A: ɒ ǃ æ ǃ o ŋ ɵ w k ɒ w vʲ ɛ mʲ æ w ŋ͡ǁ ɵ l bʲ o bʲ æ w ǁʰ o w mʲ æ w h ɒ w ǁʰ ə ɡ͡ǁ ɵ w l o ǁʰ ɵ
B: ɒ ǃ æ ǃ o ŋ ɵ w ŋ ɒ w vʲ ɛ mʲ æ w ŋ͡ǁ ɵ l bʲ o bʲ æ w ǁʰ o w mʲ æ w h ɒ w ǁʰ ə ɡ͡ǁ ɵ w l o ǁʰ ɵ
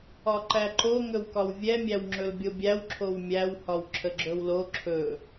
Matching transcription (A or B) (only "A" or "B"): A